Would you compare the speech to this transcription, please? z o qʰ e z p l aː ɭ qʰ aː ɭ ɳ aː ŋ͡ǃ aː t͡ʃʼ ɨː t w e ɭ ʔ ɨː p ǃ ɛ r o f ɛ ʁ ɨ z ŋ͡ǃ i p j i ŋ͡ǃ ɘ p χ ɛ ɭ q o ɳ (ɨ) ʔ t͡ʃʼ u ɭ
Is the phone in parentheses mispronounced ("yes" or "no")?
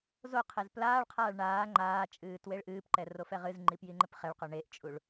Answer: yes